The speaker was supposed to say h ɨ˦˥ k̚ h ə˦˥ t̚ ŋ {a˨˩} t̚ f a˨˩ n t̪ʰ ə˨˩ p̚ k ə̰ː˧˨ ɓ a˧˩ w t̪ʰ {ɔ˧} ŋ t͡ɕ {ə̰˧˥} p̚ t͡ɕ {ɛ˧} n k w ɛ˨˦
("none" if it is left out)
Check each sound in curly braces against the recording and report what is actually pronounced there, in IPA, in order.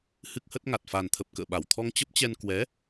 a˨˩, ɔ˧, ə˦˥, ɛ˧

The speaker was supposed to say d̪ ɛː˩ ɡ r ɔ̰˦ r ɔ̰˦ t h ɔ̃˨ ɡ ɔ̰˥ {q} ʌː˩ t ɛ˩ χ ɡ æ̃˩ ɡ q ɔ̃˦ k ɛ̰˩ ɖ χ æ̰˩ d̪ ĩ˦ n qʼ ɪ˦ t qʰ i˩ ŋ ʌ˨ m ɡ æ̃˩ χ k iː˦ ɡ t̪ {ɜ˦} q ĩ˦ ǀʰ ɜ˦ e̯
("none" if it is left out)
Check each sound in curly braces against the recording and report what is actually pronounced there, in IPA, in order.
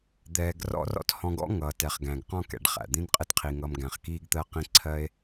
ŋ, ɜ˦

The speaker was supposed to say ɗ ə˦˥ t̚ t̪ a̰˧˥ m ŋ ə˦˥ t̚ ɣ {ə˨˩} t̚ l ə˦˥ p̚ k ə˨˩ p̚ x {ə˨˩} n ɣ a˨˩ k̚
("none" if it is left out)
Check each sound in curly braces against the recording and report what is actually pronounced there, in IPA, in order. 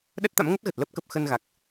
ə˨˩, ə˧

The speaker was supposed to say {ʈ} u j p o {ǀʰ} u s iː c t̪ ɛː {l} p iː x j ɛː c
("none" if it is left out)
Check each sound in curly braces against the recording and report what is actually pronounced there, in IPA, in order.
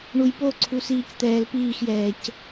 ɳ, ǀʰ, l

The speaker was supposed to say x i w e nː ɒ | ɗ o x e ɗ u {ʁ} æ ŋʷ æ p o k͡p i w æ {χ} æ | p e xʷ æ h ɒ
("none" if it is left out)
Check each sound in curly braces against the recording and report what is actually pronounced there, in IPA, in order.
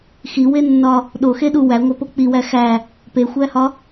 w, x

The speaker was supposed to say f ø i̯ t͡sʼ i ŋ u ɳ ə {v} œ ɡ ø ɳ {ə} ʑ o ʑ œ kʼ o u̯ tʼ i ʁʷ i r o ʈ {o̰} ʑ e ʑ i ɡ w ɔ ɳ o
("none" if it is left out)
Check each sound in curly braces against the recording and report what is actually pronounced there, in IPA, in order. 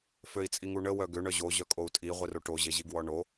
w, œ, o

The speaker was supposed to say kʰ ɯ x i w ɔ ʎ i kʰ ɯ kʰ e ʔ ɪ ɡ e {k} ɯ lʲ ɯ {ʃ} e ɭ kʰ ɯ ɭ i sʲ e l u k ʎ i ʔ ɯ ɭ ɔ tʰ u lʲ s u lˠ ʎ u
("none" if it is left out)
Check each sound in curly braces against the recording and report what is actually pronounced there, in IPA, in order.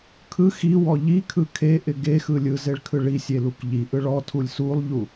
x, z

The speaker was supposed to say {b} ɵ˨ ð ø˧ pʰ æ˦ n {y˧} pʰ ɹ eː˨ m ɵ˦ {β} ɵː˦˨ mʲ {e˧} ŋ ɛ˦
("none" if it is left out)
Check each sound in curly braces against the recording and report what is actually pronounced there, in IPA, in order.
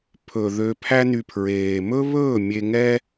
pʰ, y˧, β, e˧

